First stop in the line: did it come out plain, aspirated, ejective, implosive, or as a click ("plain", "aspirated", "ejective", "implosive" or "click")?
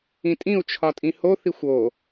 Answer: ejective